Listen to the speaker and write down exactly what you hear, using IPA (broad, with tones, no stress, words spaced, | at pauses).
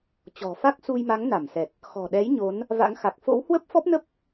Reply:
t͡ɕɔ̤˨˩fa˦˥k̚ su˧jma˨˦ŋ na˧˩msɛ˨˩t̚ | xɔ̤˨˩ɗɛ˨˦j ɲo˨˦n | va̰˧˥ŋ xa˨˩k̚ fo̰˧˥whwə˦˥p̚fɔ˦˥p̚ nə˦˥p̚